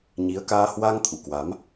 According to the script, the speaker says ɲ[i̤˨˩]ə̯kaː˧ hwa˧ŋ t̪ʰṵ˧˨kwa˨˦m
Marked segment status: incorrect: i˨˦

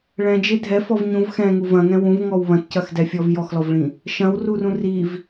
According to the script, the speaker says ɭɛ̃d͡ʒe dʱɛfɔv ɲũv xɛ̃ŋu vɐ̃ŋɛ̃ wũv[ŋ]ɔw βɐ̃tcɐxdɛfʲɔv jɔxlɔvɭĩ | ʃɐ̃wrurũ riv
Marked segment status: correct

